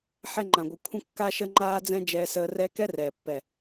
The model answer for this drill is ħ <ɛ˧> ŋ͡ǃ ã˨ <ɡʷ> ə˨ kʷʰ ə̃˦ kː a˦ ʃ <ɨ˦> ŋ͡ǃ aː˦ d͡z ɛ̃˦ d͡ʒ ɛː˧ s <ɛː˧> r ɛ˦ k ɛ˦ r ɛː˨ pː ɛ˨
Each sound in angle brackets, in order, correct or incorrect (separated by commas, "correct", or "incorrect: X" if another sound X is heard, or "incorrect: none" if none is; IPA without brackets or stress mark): correct, correct, incorrect: ə˦, incorrect: əː˧